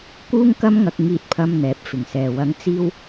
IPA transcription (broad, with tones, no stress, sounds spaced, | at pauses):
k uː˥ ŋ k ɐ˥ m ŋ ɐ˧ k̚ ŋ iː˧ t̚ pʰ ɐ˧ m n̪ ɛː˨˥ p̚ f ɪ˨˩ ŋ s ɛː˨ w ɐ˨˧ ŋ t͡s iː˧ w